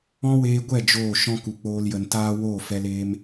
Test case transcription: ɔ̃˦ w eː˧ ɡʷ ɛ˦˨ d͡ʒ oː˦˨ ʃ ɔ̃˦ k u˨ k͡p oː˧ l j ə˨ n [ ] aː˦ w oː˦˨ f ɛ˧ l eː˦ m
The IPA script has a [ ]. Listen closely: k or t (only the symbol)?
t